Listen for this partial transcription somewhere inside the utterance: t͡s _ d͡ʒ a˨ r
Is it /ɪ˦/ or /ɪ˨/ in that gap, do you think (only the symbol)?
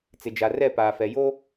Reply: ɪ˨